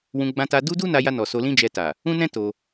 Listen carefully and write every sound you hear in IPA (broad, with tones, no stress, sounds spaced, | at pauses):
w ũ˧ ɡ͡b ã˧ t a˧ d u˦ d u˦ n a˧ j a˧ n ɔ˨ s o˧ l ĩ˦ d͡ʒ ɛ˧ t a˨ | ũ˦ n ɛ̃˦ t o˧